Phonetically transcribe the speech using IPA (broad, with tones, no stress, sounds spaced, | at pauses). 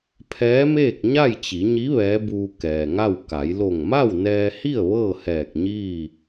pʰ ɛː˧˥ m eː˥˨ k̚ ɲ a˥˨ j t͡ɕ i˩˧ ɲ i˧˥ ʋ ɛː˧˥ b uː˧ k ɛː˩ ŋ a˥˨ w k a˩˧ j l o˧˩ ŋ m a˥˨ w n ɛː˧ h i˥˨ ə̯ ʋ ɤː˥˨ h ɛː˧˩ k̚ ɲ iː˥˨